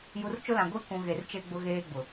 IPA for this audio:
ju˨rt͡ʃʊ˦lã˨ ɡʷi˦ kũ˨ ɣe˨rt͡ʃe˦ɡ͡bʊ˦ ɣeː˦ɡ͡bʊ˨

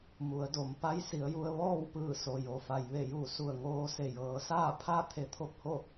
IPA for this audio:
mu˩˧ə̯do˩˧m pa˧˥jsi˩˧ə̯ju˧ə̯ ʋɔː˥˨wpɯː˧˩ so˩jo˩fa˩j ʋe˧˩ju˧˩ su˧˩ə̯ŋoː˧ se˧˩ jɤː˩˧saː˥˨pʰa˥˨ t̪ʰe˧˥t̪ʰo˥˨p̚ho˥˨

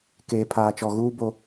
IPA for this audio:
keː˨pʰaː˨ t͡ʃɔ˨ɣuː˦ bo˦

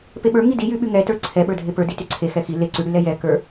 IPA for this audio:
peɓə˞ ŋidi jyɓy ŋɛtə˞ ǀʰɛɓə˞dʱe pə˞ dityǀʰe xɛxi leǀyɽylɛ jɛkə˞

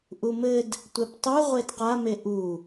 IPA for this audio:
ʔumɘd | tʷɛptˤu ʁʷedqame ʔu

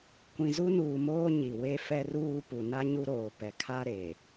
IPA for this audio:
kʷĩ˨zu˦nuː˨moː˦ ɲi˨we˦ fɛ˦ruː˦ pu˨ na˦ ɲu˦ɾoː˨ pɛ˨kʰa˦ ɾe˨

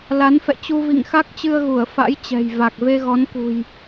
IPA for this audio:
la˨˦nfɛ̰˧˨t͡ɕu˧ vḭ˧˨ŋxa˦˥k̚t͡ɕɨ˧ə̯ɣu˧˩ə̯ fa̰˧˥jt͡ɕɛ̤˨˩j va˨˩k̚ ve˧ɣɔ˨˦nkṳ˨˩j

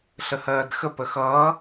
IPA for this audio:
ɬəhɜːdxə pəxʌː

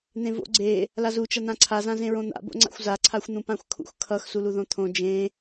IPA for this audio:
n̪ẽvo̰ ɡ͡ǀe | lazu t͡ʃʌn̪ãǀʰa zãzẽɹõn̪a̰ bo̰ŋ͡ǀa̰xʷza ǀʰaxʷn̪ũpãxʷkʰṵx kʰʌx suluðõt̪ʰõ d͡ʒẽ

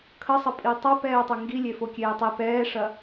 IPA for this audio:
kʰəsˤə pʼitˤɐ pɛːtˤɐŋɡilʲe fokʲeːtˤi pɛːʂɐ

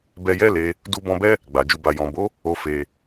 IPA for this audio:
bɛ˧jɛ˦le˧ | du˧ bɔ̃˧bɛ˦ | ɡ͡ba˨ d͡ʒu˨ba˨ jɔ̃˨bo˨˦ | o˧ fe˧

